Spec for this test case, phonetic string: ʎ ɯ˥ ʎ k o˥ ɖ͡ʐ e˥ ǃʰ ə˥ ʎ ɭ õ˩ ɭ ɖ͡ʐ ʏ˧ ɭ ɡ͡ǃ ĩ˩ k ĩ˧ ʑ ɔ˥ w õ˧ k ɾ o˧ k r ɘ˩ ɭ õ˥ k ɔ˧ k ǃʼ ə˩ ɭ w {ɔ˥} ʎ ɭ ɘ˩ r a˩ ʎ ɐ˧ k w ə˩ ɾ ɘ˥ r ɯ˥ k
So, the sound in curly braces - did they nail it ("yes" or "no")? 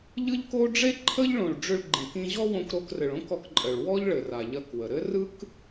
yes